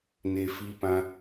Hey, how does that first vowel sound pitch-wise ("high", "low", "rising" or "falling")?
low